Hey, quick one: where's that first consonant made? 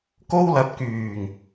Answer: velum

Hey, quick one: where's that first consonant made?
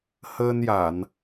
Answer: throat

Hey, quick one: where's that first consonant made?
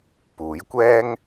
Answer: lips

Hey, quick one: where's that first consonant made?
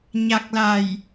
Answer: palate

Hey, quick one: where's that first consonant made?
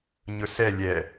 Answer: palate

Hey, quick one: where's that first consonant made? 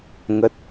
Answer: velum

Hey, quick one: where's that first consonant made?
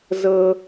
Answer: tongue tip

